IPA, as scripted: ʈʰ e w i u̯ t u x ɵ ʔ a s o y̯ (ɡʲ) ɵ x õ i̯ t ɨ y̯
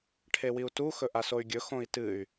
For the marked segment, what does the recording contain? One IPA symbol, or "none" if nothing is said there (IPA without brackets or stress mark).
ɡʲ